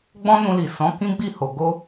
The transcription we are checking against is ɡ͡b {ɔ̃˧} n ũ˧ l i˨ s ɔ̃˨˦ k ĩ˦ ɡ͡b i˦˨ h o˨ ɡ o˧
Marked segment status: incorrect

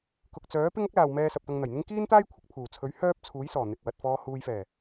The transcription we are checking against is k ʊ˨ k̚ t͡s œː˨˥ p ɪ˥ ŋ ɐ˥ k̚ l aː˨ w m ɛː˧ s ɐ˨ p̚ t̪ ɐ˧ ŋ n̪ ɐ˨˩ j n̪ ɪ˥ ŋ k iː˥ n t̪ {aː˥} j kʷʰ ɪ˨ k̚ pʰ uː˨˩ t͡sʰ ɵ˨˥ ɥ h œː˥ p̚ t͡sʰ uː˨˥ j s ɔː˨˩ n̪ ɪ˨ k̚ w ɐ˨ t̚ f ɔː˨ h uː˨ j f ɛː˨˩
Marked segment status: correct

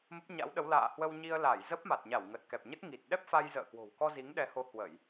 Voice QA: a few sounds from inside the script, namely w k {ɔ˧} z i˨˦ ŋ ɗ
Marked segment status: correct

